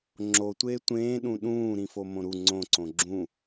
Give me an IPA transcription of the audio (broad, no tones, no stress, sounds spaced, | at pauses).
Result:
ŋ͡ǁ o tʷ eː tʷ ẽː ɗ ũ ɗ ũː ɾ ĩ f o m õ ɾ u ŋ͡ǀ õ ǀ õ ɡ͡ǁ ũ